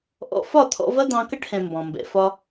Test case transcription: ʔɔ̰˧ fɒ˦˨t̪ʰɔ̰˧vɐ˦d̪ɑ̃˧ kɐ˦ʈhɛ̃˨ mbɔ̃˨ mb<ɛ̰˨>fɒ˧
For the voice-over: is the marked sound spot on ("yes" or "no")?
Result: yes